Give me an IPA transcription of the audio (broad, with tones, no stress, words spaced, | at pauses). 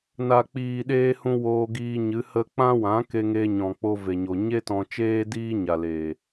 na˨k͡piː˨ɗeː˧ hũ˧ woː˧ɡiː˧ɲɨ˨˦ hə˧k͡pã˦wã˨˦ ke˧ŋe˧ ɲɔ̃˨k͡po˧ve˨ɲo˨ ɲe˦tɔ̃˧t͡ʃeː˦ diː˦ɲa˨leː˨